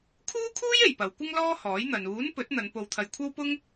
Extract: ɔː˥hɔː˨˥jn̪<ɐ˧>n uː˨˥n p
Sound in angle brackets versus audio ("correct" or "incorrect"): incorrect